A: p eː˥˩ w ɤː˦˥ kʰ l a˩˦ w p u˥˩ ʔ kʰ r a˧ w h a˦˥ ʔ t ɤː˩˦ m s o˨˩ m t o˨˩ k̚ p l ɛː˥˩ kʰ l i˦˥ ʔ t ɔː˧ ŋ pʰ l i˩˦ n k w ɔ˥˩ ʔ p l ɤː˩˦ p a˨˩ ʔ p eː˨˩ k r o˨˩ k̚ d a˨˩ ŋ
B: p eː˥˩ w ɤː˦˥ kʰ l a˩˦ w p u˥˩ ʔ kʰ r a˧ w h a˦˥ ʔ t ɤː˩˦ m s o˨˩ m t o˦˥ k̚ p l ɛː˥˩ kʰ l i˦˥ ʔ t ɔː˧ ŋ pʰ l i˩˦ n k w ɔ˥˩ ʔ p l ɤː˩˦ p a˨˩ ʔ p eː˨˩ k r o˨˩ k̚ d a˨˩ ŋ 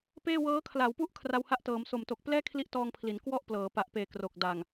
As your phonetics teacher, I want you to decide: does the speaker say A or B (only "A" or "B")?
A